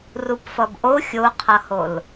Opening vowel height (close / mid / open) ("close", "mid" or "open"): close